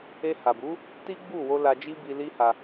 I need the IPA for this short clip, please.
e˧ h a˨ b u˨˦ | t i˦ ɡ͡b u˦˨ w o˧ l a˧ d͡ʒ i˦ b i˧ l i˦ h a˧

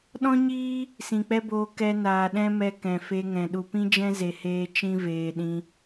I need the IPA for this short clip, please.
ɗ ɔ̃˦ ɲ iː˦ | s ĩ˨ k͡p ɛ˦ b oː˧ k ɛ˧ n aː˨ ɗ ɛ̃˦ m ɛ˧ k ɛ̃˨ f e˧ ŋ ɛ̃˨ ɗ u˨ p ĩ˦ d͡ʒ ɛ̃˦ z e˧ h eː˦ t͡ʃ ĩ˦ v eː˧ ɗ ĩ˦

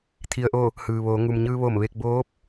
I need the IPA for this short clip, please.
t̪ʰ i˩ ə̯ ʔ o˧˩ | h ɯː˩ ʋ oː˩˧ ŋ u˩ m ɲ ɯː˧ ʋ o˧˩ m ʋ e˥˨ k̚ b oː˧˥ p̚

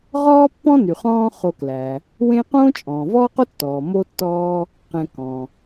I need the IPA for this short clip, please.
ʁ ɔː˦ pː ɔ̃˦ n y˩ χ ɔ̃ː˦ χ o˨ k l æ˩ | w ẽ˦ q õː˥ t͡ʃʼ ɔ̃ː˩ v ɔː˥ q o˥ tː ɔː˩ m o˥ tː ɔː˥ | q ɛ̃˨ k ɔ̃˩

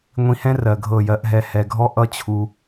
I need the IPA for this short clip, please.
ŋʷ ĩ˧ h ɛ̃˦ r ɜ˨ ɡʱ ɤ˦˨ j ɜ˧ ʔ ɦ ɛ˧ h ɛ˨ ɡʱ ɔ˦ ʔ ʌ˦ t͡ɕʰ u˧

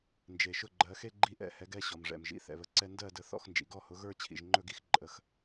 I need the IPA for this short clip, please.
n d͡ʒ e˩ ʃ ʊ˥˩ ɡ͡ǃ ɜ˩˥ x e˥˧ ɡ͡ǃ i˥˩ ʔ ɛ̰˥˩ h ɛ˩˥ ɡ ɛ˥˩ ɕ ɔ˩ m ʐ ɛ̰˩ m ʒ ḭ˩˥ θ ɛ̰˩ β ə˩ ǀ ɛ˥˧ n d ɜ˥˩ d ə˩˥ θ ɔ̰˥˩ x n d͡ʒ ḭ˩ ɡ ɔ˥˩ h ʊ˩˥ ɣ ə˞˥˧ t͡ɕʰ ḭ˩ ʒ ŋ͡ǃ ɵ˥˩ ɡ i˥˧ x ǃʼ ə˩˥ x

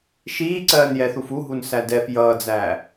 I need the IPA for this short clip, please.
ʃ iː ǀ ɜː n j ɛ θ u f u ɦ u n s æ d ɛ f j ʌː d͡z æː

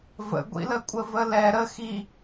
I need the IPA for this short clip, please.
v ə̰ ɡʷ ḭ l ə kʷʼ ə v ə l ɛ ɾ ə x i

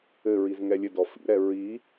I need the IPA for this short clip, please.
ɘ ɹ i z ŋ ɛ lʲ ɘ d ɔ f ḭ ɾ ɛ ɹ i

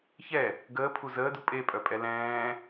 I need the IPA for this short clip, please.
ç ɛ | ɡ əː pʰ u z əː d u pʼ e pʼ œ pʼ ɛ l ɛ̃ː

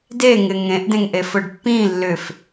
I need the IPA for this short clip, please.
d e ŋ ɪ ŋ ẽ ʔ d ẽ ŋ ʔ e f ʊ ɖ pː ĩ lː ʏ f

